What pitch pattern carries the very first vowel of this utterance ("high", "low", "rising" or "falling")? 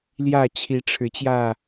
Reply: falling